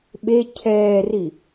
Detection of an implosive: present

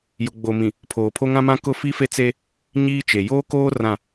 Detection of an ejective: absent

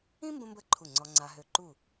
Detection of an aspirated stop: present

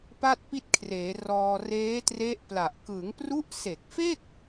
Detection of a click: absent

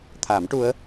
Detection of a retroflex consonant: present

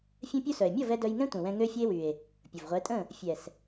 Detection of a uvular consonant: present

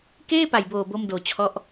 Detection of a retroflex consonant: absent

